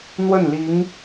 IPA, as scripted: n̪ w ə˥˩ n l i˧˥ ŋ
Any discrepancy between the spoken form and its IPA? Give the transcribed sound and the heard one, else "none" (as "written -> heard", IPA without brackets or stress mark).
none